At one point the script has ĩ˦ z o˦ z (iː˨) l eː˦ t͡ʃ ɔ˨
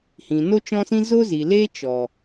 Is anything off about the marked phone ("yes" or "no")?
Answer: yes